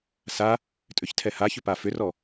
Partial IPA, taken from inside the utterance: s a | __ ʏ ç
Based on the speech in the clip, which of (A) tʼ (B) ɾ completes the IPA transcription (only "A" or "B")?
A